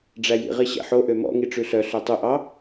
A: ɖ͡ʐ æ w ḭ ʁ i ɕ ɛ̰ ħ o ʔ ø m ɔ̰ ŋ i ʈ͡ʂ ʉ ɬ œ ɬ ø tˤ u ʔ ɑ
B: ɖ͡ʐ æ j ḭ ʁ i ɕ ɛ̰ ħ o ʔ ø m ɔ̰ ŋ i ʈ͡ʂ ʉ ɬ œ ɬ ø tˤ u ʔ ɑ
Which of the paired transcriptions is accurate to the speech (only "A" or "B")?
B